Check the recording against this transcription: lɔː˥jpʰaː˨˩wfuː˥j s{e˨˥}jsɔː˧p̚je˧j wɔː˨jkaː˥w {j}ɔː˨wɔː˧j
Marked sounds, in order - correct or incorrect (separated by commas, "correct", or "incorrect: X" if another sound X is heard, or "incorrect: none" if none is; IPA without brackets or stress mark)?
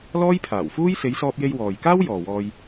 incorrect: e˨˧, correct